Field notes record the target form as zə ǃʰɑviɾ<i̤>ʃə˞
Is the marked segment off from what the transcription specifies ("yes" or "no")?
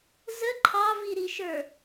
yes